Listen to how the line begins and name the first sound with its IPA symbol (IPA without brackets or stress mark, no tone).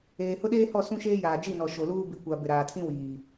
eː